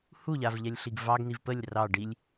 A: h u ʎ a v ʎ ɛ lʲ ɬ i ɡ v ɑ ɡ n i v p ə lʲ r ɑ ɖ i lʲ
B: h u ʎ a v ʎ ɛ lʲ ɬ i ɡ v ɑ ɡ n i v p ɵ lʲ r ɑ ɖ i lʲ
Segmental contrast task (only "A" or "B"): A